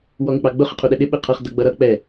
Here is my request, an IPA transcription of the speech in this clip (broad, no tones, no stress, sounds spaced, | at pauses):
w ɔ ŋ ɪ k͡p ɑ ɡ͡b ʊ χ ə qʰ u ɗ ɛ ɗ ɪ ɓ ɪ qʰ ʌ χ d ʌ ɡ͡b ʌ ɾ ʌ k͡p ɛ